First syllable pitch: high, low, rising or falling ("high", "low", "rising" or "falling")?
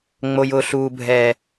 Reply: low